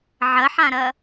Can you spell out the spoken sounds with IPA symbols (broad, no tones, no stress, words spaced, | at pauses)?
ʕɐħãɾɐ